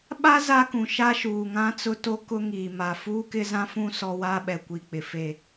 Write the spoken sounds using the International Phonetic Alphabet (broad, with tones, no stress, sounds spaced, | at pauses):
ɓ a˦ z a˦ k ũ˨ ʃ a˦ ʃ uː˨ ŋ ã˦ t͡s ʊ˦ t o˦ k ʊ˦ ŋ iː˨ m a˨ f uː˦ k ɪ˦ z ã˦ f ũ˦ s ɔ˦ w a˦ ɓ ɛ˨ kʷ i˨ k͡p ɪ˨ f e˦˨